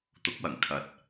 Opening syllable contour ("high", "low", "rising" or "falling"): rising